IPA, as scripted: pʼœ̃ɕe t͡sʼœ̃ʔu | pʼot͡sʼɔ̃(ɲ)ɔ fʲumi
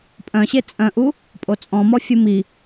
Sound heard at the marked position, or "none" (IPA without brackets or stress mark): m